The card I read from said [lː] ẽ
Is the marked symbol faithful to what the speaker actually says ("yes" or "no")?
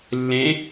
yes